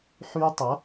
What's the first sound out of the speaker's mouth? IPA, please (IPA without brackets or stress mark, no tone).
ħ